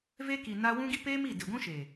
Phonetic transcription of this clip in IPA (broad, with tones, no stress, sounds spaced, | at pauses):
v e˦ k i˨ n a˦ w ũ˦ ɡ i˦ p eː˦ m i˦˨ d ɪ˨ ɡʷ ũ˦ ʃ e˨